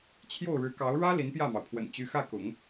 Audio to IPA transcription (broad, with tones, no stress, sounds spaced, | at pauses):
t͡ɕʰ j o˥˩ ʊ̯ ɻ ɻ̩˧˥ k ɑ˧˥ ʊ̯ ɻ ä˥ l i˧˥ n p j ä˥˩ m ɑ˩ ʊ̯ pʰ w ə̰˨˩ n t͡ɕ y˧˥ x ä˥˩ k ʊ̰˨˩˦ ŋ